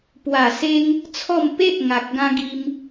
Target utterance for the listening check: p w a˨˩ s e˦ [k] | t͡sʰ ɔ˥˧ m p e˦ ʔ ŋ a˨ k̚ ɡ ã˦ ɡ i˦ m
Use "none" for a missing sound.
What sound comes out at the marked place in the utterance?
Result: ŋ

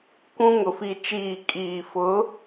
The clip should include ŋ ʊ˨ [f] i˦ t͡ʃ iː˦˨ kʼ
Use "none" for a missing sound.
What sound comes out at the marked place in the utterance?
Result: f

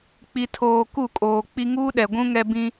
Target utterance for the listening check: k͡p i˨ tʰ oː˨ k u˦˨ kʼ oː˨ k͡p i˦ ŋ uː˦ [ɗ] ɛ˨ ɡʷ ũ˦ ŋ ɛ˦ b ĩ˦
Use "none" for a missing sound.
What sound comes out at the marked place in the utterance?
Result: ɗ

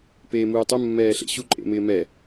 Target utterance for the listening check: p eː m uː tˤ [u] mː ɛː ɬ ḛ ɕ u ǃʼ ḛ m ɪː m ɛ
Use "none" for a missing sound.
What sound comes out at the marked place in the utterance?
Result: u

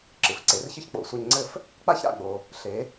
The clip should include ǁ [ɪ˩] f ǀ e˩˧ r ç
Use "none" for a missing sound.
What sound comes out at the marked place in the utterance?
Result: ɨ˩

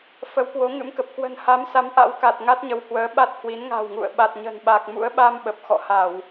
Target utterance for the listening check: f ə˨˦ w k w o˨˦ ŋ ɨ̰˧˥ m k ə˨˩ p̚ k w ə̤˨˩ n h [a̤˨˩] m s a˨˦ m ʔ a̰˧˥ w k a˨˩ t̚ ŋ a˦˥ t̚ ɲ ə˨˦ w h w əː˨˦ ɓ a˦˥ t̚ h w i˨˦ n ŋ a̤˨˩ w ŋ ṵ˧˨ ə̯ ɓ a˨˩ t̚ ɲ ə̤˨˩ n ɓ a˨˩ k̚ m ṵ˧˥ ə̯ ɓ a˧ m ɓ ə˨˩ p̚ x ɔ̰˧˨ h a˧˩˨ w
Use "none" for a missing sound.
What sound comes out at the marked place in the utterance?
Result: a˨˦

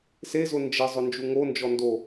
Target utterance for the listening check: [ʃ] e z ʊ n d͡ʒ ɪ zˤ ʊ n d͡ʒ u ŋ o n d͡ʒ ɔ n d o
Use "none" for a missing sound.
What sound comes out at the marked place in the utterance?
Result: s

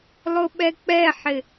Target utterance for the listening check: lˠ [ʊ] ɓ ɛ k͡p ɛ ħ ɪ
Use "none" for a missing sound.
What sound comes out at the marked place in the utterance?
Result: ʊ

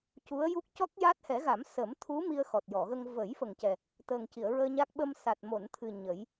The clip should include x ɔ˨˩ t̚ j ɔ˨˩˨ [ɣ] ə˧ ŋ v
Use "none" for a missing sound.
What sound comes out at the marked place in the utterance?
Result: ɣ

